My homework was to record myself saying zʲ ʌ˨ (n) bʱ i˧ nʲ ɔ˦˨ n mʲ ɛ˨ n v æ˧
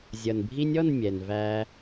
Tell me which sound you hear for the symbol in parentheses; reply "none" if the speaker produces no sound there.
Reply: n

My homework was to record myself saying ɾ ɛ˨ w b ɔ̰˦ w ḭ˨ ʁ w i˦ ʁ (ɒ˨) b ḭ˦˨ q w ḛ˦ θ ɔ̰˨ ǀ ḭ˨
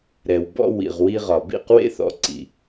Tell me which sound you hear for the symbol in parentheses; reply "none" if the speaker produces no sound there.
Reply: ɒ˨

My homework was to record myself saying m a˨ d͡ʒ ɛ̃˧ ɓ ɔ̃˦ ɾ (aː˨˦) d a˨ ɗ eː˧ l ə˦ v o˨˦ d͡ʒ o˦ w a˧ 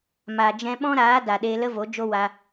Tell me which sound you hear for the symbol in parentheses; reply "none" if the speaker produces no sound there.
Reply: aː˨˦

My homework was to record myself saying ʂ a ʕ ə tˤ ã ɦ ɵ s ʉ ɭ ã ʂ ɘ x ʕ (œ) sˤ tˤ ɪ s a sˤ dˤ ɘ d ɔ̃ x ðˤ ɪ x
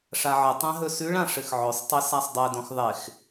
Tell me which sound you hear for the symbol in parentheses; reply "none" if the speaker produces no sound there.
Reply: ɵ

